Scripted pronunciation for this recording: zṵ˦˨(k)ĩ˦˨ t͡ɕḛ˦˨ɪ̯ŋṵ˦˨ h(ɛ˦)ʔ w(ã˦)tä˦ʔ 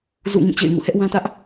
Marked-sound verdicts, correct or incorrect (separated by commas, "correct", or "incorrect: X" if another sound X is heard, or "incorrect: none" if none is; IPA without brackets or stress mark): incorrect: ŋ, correct, correct